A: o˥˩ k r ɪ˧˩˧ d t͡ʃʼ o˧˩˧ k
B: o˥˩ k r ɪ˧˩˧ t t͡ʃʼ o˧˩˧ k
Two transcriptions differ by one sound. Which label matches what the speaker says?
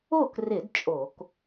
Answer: A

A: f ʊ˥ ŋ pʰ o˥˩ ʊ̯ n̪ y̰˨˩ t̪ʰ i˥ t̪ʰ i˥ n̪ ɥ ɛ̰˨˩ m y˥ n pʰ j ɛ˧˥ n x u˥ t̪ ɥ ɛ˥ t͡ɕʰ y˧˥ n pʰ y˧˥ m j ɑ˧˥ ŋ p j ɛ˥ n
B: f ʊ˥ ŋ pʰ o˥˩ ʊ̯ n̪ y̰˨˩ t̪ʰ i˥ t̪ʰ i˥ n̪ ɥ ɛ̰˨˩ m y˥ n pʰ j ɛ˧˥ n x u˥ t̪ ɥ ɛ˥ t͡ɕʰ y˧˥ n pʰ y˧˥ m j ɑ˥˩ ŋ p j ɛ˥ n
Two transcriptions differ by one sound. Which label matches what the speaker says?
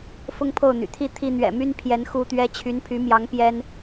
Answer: A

